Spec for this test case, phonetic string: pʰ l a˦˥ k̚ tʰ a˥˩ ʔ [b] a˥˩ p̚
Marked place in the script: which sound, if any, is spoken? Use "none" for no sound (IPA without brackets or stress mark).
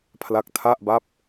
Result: b